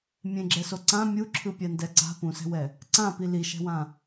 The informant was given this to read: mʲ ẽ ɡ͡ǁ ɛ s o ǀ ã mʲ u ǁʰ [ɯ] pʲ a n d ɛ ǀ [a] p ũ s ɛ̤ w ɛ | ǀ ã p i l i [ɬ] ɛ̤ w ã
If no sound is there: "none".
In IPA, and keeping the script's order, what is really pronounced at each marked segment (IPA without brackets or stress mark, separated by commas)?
ɯ, a̤, ʃ